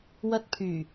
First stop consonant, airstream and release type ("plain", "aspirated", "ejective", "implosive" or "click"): plain